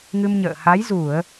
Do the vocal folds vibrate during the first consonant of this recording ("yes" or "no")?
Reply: yes